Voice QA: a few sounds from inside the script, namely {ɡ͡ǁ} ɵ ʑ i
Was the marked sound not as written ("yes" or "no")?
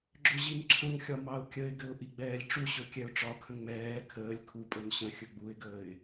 no